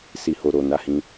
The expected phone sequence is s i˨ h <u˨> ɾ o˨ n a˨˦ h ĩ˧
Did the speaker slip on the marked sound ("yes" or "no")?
yes